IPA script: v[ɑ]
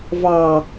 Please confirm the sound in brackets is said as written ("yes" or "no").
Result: yes